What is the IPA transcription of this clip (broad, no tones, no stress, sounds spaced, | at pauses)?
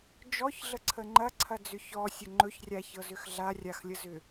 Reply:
d͡ʒ ɔ ç ɮ ə ǀʰ ə ŋ͡ǃ ɐ ǀʰ ɐ d͡z ʏ ç ɔ sʲ ə ŋ͡ǃ ɵ ç rʲ a ç ɤ z ʏ x ɮ a rʲ a x lʲ ə z ʏ